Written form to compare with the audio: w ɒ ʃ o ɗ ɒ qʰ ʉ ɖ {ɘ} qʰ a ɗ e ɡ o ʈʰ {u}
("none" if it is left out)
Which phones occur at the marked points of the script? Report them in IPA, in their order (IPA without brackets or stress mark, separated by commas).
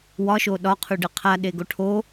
ɘ, o